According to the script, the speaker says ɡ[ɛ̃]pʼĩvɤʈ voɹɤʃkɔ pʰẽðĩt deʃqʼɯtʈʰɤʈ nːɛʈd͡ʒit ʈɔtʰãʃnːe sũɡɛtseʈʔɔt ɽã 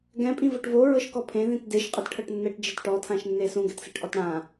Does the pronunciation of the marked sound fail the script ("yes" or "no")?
no